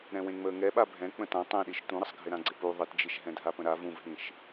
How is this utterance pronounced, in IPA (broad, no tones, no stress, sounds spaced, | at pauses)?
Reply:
ɾ ɛ̃ w ẽ ŋ͡m əː ŋ ɛ ɓ a bʱ ɛ̃ k͡p ə̃ t ã tˤ ẽ ɗ i ʃ t ũ ɾ ə sˤ ɡʱ ɪ ɾ ã ɡ͡ǀ ɪ p u ðˤ ɪ t d͡ʒ i ʃ ɦ ɛ̃ dʱ a p ə̃ ɾ a v ũ v ɦ ĩ ʃ